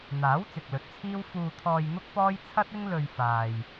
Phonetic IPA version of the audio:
n̪ aː˨˥ w t͡s ɪ˨ k̚ l ɵ˨˥ t̚ t͡sʰ iː˥ w f uː˧ t̪ʰ ɔː˧ j n̪ ʊ˥ k̚ p ɔː˥ j t͡sʰ ɐ˥ t̚ ɪ˥ ŋ l ɵ˧ ɥ f aː˨ j

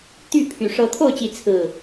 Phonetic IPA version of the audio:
t̪ y˥˨ pʰ y˨˩ ʂ ɤ˨˦ t̪ʰ o˥˨ ʊ̯ t͡ɕ i˨˦ t͡sʰ ɹ̩˥˨

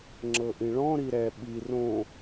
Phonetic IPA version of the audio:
ŋ͡ǁ ɤ ʔ ĩ ɭ ɔ̃ ɾ i ɾ ɛ ɓ i r õ

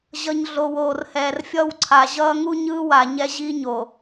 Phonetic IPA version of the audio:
ʑ ʌ˨ ɲ ɮ o˨ w oː˨ r h ɛː˨ r fʲ ʌ˦˨ w ǀʰ a˨ ʑ ʌː˦ ŋ u˦ ɲ ɯː˦ w a˨ ɲ ɛ˦ ʑ i˦ ɲ o˨

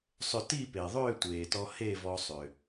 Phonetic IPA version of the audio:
sˤ ʏ˧ t i˥˧ p e˩ ðˤ ʏː˥˧ tʷ eː˩ t ɔ˧ h e˥˧ v ɔ˧ sˤ ʏː˩

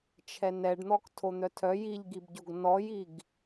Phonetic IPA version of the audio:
t͡ʃʰ ɛ n ɛ ɖ n̪ ɔ k tʰ o n̪ œ tʰ œ j i ʎ ɡ i b ɟ o ɡ n ɔ j i ɡ

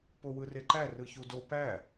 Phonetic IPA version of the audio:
p o w ɯ r e ǃ æ r ɯ ç u d o p æ

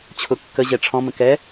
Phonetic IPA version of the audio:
t͡ɕʰ ʊ kː ə ʑ ɛ ʈ͡ʂʰ ɔ̃ m ə̃ k ɛ

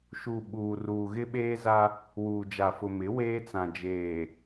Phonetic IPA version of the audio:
ʃ u˨ ɓ uː˨ r uː˨ ɣ ɪ˦ ɓ eː˦ z a˦ | w uː˨ d͡ʒ a˨ f ʊ˨ m ɪ˨˦ w eː˦ t͡s ã˨ d͡ʒ eː˨

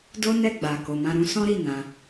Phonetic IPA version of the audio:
d o˦ n ɛ˦˨ ɡ͡b a˨ k o˨ m ã˧ ɾ ũ˦ s ɔ̃˦ ɾ i˦˨ n ã˨˦

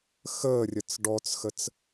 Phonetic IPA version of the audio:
x əː rʲ ə t͡s ɖ ɔ t͡s x ə t͡s

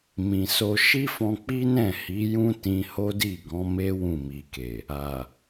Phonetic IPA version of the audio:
m ĩ˨ s o˧ ʃ i˦ f ɔ̃˧ k͡p i˦ n ɛ̃˦˨ h i˨˦ j ũ˦ t ĩ˧ h o˦ d i˦˨ ɡ ɔ̃˨˦ m e˦ w ũ˦˨ m i˨ k e˨ | a˨

